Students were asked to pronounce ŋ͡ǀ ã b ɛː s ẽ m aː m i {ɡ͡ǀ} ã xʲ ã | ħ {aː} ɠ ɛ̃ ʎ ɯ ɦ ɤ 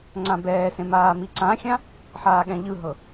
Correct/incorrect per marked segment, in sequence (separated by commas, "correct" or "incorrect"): incorrect, correct